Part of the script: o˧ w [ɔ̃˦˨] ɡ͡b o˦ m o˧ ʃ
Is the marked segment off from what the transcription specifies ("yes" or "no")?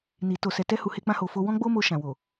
yes